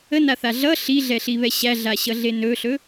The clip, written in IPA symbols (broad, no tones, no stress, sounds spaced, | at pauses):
ə n a θ a ɮ ʌ ɬ i ɮ ɛ ɬ i β ɛ ɕ æ ɮ a ɕ ʌ ɮ e n ɵ ɬ ɵ